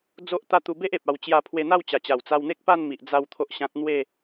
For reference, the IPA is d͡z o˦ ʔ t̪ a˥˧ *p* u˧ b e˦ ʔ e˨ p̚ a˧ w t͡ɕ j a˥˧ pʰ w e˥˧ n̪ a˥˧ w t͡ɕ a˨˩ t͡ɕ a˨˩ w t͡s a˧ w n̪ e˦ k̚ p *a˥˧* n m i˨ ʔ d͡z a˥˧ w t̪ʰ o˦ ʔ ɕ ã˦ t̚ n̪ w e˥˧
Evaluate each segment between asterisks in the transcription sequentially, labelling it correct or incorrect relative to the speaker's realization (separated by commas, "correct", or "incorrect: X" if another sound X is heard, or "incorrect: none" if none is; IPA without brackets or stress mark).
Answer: incorrect: t̪, correct